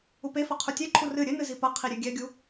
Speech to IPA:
upefɘ qʰutʲeǃʰu rɨ ɾʲɘnɨ zipɐqʰi ɾʲeɡʲɛɡʲu

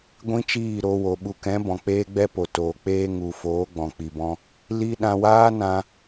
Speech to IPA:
ɡʷĩ˦t͡ʃiː˦˨ɾo˧wo˨ ɓu˨kɛ̃˨˦ bɔ̃˨k͡peː˦ɡ͡bɛ˦po˨ toː˨ k͡peː˧ ŋu˨ foː˨˦ɡ͡bɔ̃˨k͡pi˨bɔ̃˧ | li˦ ɗã˧waː˦nã˧

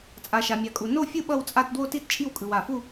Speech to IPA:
t͡sʼa˨ʃa˨mʲa˨kʼu˨ no˥˧fʲɯ˥˧ ɓʌ˥˧wt͡sʼa˥˧t dwo˥˧ti˥˧tt͡ʃʼi˥˧wkʼɯ˨w a˨fu˥˧

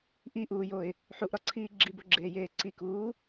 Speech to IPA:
ʔiʔuːjoɪ̯ | ħuʔɾɒǀʰiː ɡ͡ǁiboɡ͡ǁeːjeː ǀikuː

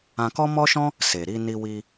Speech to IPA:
ã˧kɔ˦mɔ˦ʃɔ̃˦ | se˨ɾi˧ ni˧wi˧

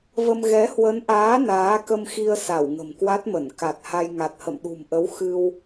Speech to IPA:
və˧m ɣɛ˨˦hwə˨˦nʔaː˨˦ naː˨˦kə˧mxi˧ə̯sa˧˩w ŋə̤˨˩mkwa˦˥t̚mə˧˩n ka˨˩t̚ha˧j ŋa˨˩t̚hə̰˧˨mɗṳ˨˩mʔə˨˦w xɨ˧w

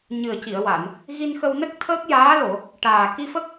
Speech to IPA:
ɲɨ˨˩ə̯ci˨˩˨ə̯wa˨˩˨n | ɣi˧nxə˧wnə˦˥k̚ t̪ʰəː˦˥k̚jaː˧˥lo˨˩˨ | ʈaː˨˩ ki˧fə˦˥k̚

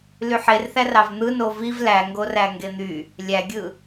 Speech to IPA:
lyħerθær ɑvn̪ɯno viv læŋɡoræ ŋɡen̪y | lʲæɡʲɯ

